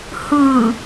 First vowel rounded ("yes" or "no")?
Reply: no